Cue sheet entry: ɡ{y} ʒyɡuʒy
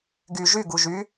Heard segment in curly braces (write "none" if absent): y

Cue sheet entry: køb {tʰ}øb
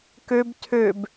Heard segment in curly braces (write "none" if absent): tʰ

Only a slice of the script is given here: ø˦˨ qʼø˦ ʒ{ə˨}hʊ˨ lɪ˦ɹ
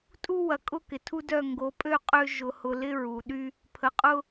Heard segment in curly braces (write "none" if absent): ʊ˨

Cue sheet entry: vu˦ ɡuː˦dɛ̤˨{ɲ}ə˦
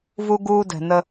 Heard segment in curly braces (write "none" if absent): n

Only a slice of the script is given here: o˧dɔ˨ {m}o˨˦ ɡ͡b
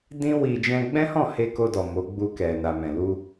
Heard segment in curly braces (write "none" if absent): m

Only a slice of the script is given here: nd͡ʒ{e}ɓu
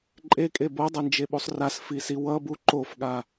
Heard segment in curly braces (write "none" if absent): e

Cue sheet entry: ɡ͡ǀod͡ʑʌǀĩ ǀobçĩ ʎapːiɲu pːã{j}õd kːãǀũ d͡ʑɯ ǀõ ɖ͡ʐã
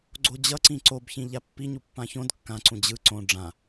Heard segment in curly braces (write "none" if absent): ç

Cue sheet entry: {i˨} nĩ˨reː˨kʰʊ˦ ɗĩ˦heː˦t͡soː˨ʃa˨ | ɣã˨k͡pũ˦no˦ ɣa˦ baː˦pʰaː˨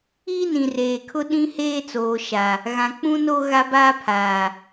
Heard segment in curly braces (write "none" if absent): i˦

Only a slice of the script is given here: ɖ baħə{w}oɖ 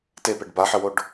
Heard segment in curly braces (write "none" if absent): w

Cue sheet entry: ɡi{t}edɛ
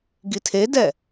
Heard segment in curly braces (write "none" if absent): tʰ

